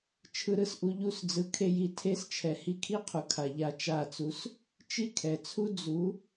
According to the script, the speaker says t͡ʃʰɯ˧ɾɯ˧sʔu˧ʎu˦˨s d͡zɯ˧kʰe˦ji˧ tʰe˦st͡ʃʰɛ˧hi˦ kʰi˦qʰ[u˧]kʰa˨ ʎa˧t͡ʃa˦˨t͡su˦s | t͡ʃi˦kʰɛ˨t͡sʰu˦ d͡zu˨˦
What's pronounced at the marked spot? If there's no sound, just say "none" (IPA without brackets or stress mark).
u˨